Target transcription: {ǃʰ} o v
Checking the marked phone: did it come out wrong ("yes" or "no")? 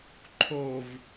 no